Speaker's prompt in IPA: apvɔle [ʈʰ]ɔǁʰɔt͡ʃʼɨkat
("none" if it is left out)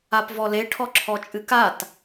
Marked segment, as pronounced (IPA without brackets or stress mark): ʈʰ